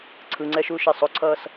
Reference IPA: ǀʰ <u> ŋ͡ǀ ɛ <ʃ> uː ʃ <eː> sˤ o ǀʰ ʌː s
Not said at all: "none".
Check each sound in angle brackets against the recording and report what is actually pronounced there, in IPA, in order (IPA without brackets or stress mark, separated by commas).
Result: ɯ, ʃ, e